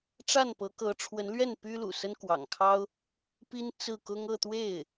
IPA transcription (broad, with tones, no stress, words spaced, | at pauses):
ʈ͡ʂa˥˩npɤ˧˥kɤ˧˥ ʈ͡ʂʰwə˧˥nlɥɛ˥˩n py˥lṵ˨˩ sə˥nkwɑ̰˨˩ŋkʰɑ˥ʊ̯ | pi˥n t͡sɹ̩˥˩kʊ˥ŋ ɤ˥˧t̪we˥˩ɪ̯